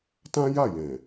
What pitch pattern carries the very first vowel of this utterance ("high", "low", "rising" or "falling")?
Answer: high